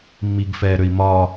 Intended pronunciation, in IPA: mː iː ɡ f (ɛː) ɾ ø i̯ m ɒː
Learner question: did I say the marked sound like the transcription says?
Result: yes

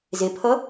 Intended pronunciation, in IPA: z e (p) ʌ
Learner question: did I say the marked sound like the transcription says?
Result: no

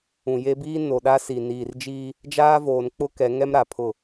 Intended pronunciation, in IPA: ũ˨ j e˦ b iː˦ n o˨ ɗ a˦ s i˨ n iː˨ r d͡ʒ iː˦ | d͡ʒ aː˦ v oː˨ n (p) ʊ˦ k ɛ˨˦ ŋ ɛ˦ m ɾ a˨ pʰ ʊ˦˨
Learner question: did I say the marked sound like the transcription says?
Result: no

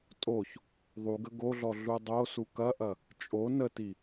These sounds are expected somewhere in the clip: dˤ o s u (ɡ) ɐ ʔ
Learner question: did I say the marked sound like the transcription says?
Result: no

